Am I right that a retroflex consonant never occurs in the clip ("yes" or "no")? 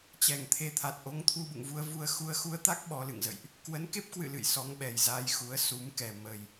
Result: yes